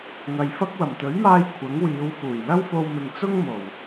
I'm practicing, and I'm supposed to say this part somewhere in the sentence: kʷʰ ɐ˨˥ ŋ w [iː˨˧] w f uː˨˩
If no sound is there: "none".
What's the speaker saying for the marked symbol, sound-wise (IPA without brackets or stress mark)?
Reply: iː˨˧